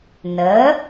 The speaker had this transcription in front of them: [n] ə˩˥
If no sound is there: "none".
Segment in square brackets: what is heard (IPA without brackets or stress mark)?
n